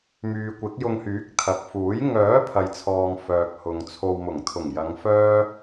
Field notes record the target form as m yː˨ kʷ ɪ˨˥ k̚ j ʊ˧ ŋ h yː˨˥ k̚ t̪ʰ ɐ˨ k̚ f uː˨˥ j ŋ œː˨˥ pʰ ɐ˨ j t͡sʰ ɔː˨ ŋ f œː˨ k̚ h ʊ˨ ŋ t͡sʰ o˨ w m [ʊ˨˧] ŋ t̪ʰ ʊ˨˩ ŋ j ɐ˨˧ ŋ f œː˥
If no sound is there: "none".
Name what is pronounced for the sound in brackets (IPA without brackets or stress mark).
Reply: ʊ˨˩